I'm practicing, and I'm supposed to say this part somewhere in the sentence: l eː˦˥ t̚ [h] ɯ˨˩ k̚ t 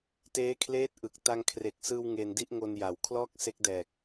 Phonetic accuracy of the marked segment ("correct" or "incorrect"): incorrect